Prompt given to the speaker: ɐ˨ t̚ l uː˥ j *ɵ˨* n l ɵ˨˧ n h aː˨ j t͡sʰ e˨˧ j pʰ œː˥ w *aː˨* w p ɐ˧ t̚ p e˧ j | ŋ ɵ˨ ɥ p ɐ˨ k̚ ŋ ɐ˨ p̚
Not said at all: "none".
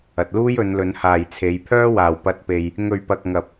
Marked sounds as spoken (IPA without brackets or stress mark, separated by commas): ɵ˨˧, aː˨